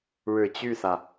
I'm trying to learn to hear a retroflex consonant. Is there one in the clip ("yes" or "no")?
yes